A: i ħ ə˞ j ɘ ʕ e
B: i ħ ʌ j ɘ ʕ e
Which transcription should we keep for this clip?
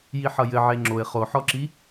B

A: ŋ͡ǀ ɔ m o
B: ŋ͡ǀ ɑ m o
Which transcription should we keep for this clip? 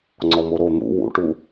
A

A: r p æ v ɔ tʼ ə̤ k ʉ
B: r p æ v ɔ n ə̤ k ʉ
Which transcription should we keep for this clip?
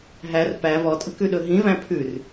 A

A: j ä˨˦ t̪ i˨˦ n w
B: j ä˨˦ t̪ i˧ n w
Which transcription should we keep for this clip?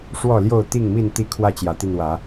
B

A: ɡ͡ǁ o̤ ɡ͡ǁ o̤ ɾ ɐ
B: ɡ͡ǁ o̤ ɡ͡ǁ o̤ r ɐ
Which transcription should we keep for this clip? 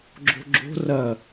B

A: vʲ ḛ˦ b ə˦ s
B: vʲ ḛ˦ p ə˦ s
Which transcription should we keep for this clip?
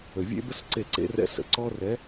A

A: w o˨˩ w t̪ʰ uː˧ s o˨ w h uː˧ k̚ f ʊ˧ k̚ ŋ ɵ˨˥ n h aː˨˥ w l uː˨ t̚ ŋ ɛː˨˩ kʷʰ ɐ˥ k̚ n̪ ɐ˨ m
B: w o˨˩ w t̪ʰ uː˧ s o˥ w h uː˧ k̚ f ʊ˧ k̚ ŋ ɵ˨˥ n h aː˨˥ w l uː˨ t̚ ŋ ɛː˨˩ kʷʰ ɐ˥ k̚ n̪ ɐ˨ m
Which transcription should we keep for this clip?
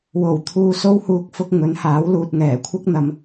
B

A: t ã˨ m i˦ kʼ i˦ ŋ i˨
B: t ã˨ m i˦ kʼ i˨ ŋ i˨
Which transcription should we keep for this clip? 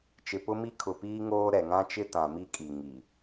B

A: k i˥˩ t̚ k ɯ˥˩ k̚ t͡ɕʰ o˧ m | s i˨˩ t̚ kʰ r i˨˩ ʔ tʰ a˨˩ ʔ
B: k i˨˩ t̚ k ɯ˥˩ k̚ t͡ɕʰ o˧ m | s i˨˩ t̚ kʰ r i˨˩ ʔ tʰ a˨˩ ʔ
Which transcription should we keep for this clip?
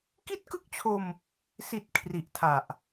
A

